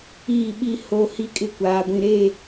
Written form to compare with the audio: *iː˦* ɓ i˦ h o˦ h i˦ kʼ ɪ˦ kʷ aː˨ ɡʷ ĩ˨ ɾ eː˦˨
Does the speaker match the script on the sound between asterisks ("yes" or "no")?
no